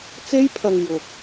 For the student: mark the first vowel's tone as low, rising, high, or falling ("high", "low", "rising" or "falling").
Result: high